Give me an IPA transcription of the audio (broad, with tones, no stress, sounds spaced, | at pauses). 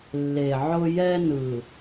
lː e˨ ʕ ʊ˦ j ɛ˦ n ɯ˨